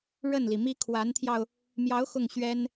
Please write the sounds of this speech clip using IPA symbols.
ɻ ə˥˩ n l i˩ m i˥ kʰ w a˧˥ n t̪ʰ j ɑ˧ ʊ̯ | m j ɑ˧˥ ʊ̯ x ʊ˥˩ ŋ ɕ ɥ ɛ˥ n

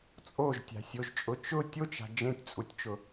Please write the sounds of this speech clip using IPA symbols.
t͡sʼ o ʒ tʲ a̤ sʲ o ʒ t͡ʃʼ ʊ t͡ʃ ʊ tʲ o t͡ʃ a̤ d͡ʒ ẽ tʲ t͡sʼ u tʲ t͡ʃ ʊ

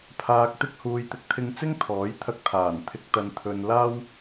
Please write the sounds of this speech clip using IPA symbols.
pʰ aː˧ k̚ t̪ ɪ˥ k̚ h uː˨ j t̪ ɪ˨ k̚ t̪ʰ ɪ˧ ŋ t͡s ɪ˥ ŋ t̪ʰ ɔː˨˥ j t̪ʰ ɐ˧ k̚ t̪ʰ aː˨˩ n t̪ʰ ɪ˨ k̚ t̪ ɐ˨ n t̪ʰ ɵ˨ n l aː˥ w

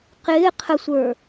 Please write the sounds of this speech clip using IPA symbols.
q ɪː qʰ ə sʷ ə˞

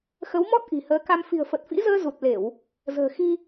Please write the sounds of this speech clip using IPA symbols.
x ə˨˦ w m ɔ˦˥ t̚ ʔ i̤˨˩ h əː˨˦ k a˧ m f i̤˨˩ ə̯ f ə˨˩ t̚ f ḭ˧˥ z əː˧ z u˨˩ t̚ l e˧˩˨ w | z ə̤ː˨˩ x i˧

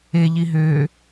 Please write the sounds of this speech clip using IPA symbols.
e ʎ i ɦ øː

